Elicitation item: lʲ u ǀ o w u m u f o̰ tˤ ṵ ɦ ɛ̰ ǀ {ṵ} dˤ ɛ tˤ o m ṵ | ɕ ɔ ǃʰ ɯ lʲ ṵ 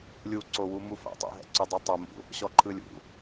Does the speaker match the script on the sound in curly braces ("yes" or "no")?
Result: no